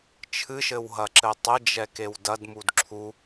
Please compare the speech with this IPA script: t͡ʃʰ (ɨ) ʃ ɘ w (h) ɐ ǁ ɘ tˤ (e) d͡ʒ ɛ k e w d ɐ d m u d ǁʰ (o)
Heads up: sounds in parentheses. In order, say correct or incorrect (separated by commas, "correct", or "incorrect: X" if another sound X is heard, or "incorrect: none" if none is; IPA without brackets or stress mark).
correct, incorrect: ɦ, incorrect: ɘ, incorrect: u